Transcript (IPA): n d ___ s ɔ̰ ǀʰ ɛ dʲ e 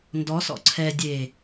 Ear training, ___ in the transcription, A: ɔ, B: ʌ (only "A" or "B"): A